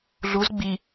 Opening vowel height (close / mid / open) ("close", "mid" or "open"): close